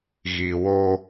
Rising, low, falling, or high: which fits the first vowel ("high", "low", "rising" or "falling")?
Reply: low